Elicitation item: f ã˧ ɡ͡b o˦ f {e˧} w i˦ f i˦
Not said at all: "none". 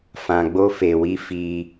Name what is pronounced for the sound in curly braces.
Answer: e˧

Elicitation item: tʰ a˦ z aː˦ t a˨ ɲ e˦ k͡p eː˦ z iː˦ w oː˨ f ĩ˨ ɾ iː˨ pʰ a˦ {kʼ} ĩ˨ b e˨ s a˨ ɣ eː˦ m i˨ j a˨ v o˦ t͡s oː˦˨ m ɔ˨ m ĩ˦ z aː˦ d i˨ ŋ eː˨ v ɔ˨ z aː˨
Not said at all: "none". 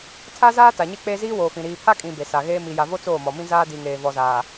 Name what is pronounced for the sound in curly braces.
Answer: kʼ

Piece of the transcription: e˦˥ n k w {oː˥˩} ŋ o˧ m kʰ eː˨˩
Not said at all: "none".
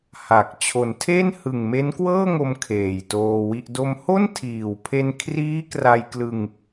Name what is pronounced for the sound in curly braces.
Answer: ɤː˥˩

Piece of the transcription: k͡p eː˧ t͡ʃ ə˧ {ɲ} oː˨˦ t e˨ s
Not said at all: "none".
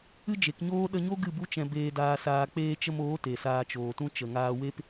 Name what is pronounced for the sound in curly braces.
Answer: m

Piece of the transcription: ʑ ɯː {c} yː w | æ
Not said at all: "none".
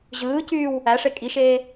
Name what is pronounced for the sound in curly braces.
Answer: c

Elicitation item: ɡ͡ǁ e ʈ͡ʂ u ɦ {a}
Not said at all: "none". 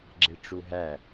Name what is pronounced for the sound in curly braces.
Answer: æ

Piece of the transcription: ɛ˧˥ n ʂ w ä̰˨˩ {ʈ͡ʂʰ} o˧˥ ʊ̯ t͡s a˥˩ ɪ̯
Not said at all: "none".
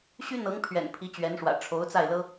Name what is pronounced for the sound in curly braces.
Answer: ʈ͡ʂʰ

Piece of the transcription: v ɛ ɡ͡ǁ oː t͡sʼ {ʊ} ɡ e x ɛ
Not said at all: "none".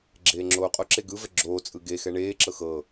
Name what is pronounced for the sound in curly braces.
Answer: ɯ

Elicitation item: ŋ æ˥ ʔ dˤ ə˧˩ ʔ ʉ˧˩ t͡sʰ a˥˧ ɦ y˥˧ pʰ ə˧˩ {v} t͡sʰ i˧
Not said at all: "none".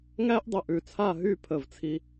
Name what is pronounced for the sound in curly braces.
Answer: v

